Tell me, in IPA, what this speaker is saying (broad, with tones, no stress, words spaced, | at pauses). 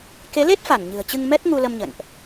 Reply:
ke˨˦le˦˥t̚fa˧˩n ɲɨ̤˨˩ə̯t͡ɕɨ˧ŋ mɛ˦˥t̚ŋu˧lə˧mɲə̰˧˨nʔ